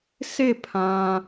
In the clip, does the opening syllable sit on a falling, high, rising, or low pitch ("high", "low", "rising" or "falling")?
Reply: falling